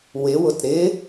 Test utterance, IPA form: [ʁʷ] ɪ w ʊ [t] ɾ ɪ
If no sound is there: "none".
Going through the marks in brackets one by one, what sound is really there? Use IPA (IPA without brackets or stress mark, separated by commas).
w, t